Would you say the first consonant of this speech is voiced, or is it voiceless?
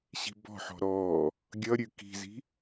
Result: voiceless